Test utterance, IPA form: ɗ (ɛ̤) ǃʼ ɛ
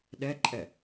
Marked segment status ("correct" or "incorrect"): incorrect